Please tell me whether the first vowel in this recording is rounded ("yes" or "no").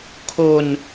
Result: yes